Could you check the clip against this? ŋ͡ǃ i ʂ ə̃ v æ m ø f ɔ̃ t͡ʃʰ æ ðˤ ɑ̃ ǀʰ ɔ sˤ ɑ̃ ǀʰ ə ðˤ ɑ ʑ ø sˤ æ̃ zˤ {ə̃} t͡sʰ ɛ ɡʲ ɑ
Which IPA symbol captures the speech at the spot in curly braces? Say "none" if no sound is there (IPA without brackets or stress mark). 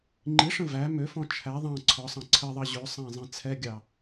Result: ɛ̃